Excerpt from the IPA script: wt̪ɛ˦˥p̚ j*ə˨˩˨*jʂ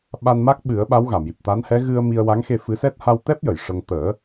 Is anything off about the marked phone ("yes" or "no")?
no